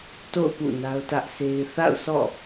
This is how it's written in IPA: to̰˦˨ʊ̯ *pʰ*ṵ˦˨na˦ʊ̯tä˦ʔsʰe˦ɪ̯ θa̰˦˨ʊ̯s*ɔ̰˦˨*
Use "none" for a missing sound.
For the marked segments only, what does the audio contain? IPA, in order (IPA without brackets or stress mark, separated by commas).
p, ɔ̰˦˨